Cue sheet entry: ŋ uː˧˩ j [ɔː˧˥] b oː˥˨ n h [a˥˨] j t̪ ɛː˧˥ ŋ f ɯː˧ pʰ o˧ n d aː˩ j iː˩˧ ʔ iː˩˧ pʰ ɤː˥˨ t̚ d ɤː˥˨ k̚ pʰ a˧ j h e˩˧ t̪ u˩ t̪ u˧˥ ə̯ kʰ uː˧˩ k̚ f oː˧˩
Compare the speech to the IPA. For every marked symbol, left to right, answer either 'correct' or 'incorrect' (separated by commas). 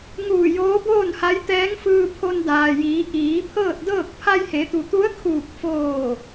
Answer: incorrect, incorrect